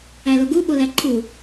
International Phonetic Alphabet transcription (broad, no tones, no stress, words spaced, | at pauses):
æloɡu ɓolæǃʰu